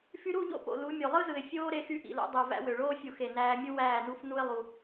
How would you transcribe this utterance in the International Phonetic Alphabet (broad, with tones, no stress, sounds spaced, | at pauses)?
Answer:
f y˧ ɾ u˦˨ ʎ o̰˦ p o̰˨ l u˨˦ mʲ o˨ lˠ ɯ˦ z ɯ˨ ɪ̯ fʲ oː˧ ɾ e˧ x y˧ ʔ ḭ˨ l o̰˧ dˤ o˨ v æ̰˧ w ø˨ ɭ oː˧ fʲ u˨ x e˨ n æː˧ mʲ u˦ w æː˦˨ n u˦ f n u˦ ɪ̯ lˠ u˧